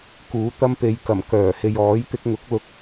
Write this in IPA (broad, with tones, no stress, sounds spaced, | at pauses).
k uː˨˥ t̪ ɐ˥ m p e˨ j k ɐ˨˩ m k œː˨˩ h e˨ j ɔː˨˥ j t̪ ɪ˧ k̚ ŋ ʊ˨˥ k̚ l ʊ˧ k̚